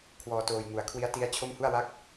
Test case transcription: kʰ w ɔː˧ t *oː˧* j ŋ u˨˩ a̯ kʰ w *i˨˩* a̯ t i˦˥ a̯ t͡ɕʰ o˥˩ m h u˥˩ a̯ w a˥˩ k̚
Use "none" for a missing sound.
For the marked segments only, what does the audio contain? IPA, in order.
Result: oː˧, i˦˥

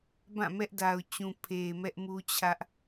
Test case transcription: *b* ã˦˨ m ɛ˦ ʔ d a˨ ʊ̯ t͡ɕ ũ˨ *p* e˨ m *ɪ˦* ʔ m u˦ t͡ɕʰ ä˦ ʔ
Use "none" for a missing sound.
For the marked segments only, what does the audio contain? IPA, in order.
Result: b, pʰ, ɛ˦

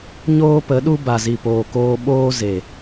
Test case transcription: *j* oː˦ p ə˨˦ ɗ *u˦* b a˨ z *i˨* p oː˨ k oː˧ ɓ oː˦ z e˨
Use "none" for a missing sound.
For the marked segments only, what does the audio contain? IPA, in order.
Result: ɲ, u˦, i˨

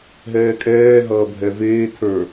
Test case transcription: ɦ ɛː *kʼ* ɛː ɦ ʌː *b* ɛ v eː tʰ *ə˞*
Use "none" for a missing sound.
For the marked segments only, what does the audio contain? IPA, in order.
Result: kʼ, bʱ, ə˞

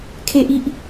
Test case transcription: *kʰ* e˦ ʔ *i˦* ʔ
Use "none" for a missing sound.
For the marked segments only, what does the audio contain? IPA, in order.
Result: kʰ, i˦

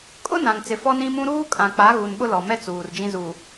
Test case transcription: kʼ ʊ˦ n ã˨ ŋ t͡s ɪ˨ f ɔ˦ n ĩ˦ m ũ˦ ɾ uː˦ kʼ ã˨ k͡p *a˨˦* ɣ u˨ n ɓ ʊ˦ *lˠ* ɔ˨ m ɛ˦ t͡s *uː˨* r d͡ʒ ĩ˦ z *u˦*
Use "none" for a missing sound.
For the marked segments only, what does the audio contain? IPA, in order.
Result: a˨˦, l, uː˨, u˨

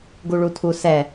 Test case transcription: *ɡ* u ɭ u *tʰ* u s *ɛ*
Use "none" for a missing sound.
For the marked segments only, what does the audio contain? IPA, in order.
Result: ɡ, tʰ, ɛ

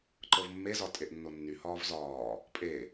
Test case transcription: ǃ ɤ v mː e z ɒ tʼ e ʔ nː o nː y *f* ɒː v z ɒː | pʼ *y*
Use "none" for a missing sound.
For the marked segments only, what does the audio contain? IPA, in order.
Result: h, e

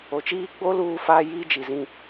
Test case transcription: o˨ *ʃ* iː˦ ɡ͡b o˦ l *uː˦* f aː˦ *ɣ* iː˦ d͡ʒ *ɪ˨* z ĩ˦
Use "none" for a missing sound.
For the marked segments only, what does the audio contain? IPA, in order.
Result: t͡ʃ, uː˦, j, i˨

